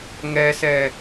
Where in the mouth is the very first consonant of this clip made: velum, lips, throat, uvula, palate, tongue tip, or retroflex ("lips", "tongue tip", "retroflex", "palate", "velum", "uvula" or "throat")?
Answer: velum